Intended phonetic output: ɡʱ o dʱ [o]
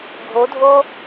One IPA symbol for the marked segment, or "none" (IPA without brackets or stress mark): o